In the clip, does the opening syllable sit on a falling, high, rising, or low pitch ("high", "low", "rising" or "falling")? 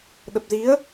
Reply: low